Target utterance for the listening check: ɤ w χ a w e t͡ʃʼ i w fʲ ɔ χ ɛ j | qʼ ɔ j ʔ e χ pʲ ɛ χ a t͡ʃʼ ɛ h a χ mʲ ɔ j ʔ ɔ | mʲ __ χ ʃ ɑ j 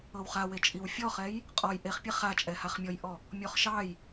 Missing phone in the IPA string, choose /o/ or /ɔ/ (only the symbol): ɔ